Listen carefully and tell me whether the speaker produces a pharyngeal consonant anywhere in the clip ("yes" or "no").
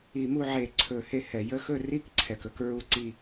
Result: yes